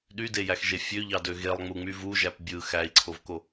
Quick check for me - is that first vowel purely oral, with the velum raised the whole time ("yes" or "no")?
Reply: yes